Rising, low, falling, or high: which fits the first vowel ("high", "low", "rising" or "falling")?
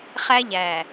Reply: high